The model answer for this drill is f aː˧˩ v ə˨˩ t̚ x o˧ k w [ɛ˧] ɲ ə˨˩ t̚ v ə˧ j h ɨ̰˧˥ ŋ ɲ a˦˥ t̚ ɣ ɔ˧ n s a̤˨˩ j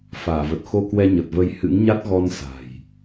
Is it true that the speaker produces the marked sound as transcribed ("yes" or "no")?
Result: yes